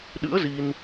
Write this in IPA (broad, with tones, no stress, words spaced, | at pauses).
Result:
ɗɨ̰˧˥ə̯ zi˧n